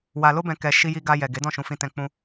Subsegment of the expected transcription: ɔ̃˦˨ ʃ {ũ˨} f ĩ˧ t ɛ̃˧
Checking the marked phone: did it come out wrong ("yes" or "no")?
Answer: yes